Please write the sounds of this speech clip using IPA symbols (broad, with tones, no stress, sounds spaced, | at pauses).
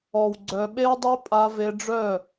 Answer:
ɔ˨ w ɡ͡ǀ œ˨ ɓ e˦ w dˤ œ˦ pʼ a˧ v e˧ ɖ͡ʐ œ˦˨